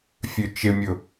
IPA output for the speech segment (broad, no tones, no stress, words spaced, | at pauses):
fʲøt͡ʃɪmʲʊ